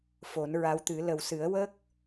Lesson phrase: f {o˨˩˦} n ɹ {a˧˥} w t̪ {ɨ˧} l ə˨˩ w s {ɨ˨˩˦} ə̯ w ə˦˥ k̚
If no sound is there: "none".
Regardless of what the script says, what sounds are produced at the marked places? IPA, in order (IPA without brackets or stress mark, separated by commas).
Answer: o˨˩˦, a˧˥, ɨ˨˩˦, ɨ˨˩˦